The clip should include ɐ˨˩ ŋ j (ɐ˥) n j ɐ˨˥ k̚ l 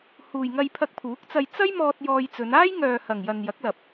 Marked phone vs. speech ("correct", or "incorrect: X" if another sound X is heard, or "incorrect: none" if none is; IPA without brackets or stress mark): incorrect: ɐ˨